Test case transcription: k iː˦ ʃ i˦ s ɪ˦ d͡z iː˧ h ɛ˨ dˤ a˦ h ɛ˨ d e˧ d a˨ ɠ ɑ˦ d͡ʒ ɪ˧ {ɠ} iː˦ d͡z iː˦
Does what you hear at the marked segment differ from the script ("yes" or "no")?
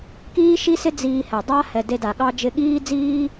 no